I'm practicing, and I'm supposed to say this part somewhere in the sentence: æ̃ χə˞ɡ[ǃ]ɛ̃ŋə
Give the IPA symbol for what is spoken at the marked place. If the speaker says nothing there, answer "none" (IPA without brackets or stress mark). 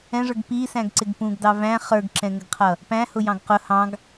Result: ǁ